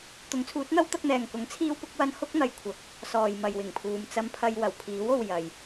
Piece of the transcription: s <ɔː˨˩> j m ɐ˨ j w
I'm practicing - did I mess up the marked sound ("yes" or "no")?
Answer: yes